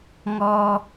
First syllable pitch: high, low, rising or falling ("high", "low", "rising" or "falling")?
high